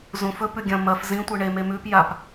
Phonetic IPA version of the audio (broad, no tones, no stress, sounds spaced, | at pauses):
z ũ f ɵ p ʉ ɡʲ ɐ̃ m ɐ f z ĩ tʷ ɨ ɳ e m e m ʉ p j a p